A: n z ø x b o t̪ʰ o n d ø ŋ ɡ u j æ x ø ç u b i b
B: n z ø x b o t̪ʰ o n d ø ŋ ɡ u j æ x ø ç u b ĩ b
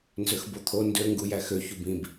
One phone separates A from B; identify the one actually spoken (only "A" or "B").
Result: B